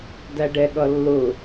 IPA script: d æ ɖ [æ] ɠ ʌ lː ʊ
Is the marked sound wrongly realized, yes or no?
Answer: yes